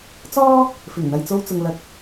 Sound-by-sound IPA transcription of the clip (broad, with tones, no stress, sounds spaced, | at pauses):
t͡s ɔː˥ | f ɪ˨˩ ŋ n̪ ɐ˨ j t͡s o˧ w t͡s ʊ˨ ŋ l ɐ˨˥ k̚